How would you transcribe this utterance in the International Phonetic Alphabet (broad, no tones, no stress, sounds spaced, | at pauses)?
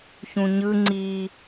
ç ũ ɲ ɯ ŋ͡ǀ i